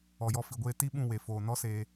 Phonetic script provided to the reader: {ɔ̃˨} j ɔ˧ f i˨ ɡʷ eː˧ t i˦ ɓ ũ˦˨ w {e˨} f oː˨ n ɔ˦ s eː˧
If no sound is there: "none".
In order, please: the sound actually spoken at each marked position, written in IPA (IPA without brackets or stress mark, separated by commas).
ɔ˨, e˨